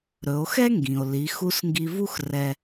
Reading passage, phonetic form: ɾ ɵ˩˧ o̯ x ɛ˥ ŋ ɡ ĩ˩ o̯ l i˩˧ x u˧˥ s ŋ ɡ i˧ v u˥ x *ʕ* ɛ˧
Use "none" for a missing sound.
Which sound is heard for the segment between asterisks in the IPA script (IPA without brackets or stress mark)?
r